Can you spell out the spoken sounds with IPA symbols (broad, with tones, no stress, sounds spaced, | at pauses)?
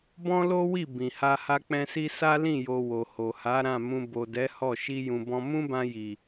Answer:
b ɔ̃˦ l o˦ w i˦˨ b ĩ˨ h a˧ h a˧ k͡p ɛ̃˧ s i˧ s a˦ l ĩ˦˨ j o˧ w o˨ h o˨ h a˨˦ ɾ ã˦˨ m ũ˧ b o˨ d ɛ˨˦ h ɔ˦˨ ʃ i˧ j ũ˨ b ɔ̃˧ m ũ˦ b ã˧ j i˨